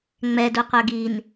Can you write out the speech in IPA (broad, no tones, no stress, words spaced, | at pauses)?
ŋ͡mɛdu qʷœɡin